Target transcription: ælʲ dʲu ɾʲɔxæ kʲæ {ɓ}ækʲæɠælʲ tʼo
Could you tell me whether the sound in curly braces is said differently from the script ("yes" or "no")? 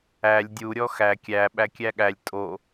no